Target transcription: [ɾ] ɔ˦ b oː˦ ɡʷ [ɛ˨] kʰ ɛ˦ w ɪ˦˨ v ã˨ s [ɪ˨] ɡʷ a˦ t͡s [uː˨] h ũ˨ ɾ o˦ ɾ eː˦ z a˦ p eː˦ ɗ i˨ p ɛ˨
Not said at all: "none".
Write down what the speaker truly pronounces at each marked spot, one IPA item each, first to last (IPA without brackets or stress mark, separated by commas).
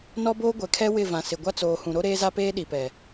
n, ɛ˨, ɪ˨, oː˨